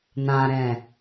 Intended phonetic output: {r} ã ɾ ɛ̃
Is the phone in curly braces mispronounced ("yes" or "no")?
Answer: yes